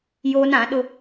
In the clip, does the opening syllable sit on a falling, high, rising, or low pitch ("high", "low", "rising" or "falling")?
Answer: high